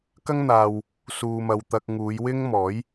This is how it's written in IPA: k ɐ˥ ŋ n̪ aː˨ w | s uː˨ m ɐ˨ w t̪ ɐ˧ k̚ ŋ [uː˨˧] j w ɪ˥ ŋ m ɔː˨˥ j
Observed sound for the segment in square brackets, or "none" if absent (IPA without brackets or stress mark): uː˨˧